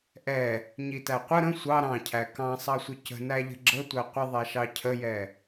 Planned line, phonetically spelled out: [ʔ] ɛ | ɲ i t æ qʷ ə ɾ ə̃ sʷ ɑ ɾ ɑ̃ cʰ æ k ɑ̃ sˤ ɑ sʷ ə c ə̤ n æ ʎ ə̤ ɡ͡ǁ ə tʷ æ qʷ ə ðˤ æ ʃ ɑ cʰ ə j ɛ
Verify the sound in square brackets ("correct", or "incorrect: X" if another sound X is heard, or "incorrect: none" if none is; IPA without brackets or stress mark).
correct